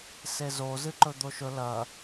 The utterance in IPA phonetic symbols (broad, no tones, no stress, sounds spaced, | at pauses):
s e z o z ɨ ǃ ɵ d̪ o ʃ ɵ l ɐ